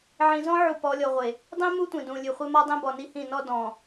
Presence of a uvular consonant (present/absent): present